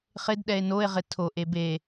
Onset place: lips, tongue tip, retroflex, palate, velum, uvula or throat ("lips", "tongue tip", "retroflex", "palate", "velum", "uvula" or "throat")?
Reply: uvula